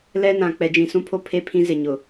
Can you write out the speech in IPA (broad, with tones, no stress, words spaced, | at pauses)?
lɛ˦nã˨ k͡pɛ˨d͡ʒĩ˨sũ˦pʰo˦ pʰe˦pʰĩ˦zɪ˨ɲʊ˨